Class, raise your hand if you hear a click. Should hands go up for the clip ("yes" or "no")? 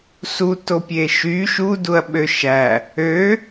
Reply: no